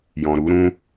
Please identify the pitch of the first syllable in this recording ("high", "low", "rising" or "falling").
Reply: low